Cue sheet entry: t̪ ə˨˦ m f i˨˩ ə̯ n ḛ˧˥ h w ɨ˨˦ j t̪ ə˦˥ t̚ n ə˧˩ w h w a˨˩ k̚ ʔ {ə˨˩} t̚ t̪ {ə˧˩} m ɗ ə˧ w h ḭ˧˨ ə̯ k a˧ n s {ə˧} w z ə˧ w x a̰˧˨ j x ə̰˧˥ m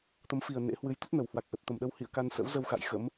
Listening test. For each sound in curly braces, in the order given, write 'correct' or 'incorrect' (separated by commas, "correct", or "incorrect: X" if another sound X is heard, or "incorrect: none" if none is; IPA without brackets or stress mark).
correct, correct, incorrect: ə̰˧˥